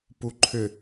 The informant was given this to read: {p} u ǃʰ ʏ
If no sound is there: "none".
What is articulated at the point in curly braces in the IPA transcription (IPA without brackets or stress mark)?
p